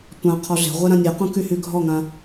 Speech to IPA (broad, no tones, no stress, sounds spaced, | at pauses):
tʷ ã qʰ ɔ ɮ e̤ ʁʷ ɛ ɾ ã nʲ ɛ q ũ k y h y ɡʱ ɔ ŋ ã